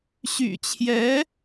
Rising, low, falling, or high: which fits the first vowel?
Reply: low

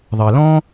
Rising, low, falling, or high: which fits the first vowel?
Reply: low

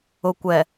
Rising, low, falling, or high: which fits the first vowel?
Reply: low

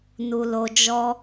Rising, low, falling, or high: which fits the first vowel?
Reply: low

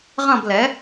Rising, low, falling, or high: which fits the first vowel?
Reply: falling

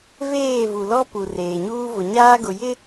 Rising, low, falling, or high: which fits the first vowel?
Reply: falling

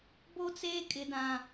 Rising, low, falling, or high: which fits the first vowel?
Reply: high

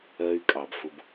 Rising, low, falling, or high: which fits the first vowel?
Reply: high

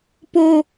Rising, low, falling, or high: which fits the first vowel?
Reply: high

